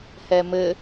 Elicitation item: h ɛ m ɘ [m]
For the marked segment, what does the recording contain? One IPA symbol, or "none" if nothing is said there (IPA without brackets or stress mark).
none